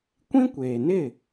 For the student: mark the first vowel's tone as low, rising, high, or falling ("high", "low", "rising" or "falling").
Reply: high